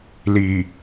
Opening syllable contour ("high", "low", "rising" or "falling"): low